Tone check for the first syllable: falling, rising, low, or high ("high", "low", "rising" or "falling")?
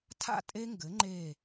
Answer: falling